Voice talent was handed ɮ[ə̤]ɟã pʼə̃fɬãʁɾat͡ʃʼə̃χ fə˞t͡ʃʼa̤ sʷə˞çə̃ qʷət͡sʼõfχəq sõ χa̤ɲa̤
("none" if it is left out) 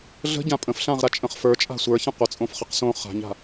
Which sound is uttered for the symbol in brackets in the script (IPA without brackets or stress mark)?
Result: ə̤